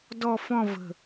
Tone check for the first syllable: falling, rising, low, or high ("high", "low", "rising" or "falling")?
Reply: falling